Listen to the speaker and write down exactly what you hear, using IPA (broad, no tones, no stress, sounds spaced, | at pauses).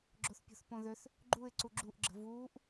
ɡ͡ǁ o θ pʲ o̤ θ p õ ð ø θ | ɡ͡ǃ u ɪ̯ ǀ u ɡ͡ǁ u ʔ ɡ͡ǁ ə̤ v uː ʔ